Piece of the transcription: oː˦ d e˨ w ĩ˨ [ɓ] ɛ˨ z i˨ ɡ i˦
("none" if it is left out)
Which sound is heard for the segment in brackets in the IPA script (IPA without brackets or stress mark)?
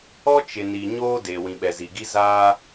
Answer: ɓ